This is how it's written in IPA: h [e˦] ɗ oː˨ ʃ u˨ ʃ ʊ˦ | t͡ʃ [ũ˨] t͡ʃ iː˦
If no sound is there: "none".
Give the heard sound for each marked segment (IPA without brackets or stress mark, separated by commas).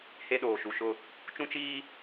e˦, ũ˦